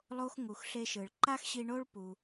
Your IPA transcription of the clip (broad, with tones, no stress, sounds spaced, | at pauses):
lˠ o˥ x ŋ u˩ x ɬ e˧ ʃ ɯ˩ ɭ ǃ a˥ x ɕ i˧ ɳ o˥ ɭ p u˩